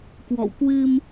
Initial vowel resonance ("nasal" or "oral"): oral